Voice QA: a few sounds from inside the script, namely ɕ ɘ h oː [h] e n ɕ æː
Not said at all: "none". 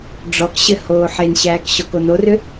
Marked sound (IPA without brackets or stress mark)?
ħ